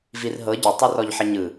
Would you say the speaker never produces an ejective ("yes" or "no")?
yes